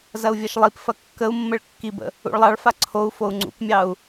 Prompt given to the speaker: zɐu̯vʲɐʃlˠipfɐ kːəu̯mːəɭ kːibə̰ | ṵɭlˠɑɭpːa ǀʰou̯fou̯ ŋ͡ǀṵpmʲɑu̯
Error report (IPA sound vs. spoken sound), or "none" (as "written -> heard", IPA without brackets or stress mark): pː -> f